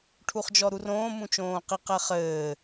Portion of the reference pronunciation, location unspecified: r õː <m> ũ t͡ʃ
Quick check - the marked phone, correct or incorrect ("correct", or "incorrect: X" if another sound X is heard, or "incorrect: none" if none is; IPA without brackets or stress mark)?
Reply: correct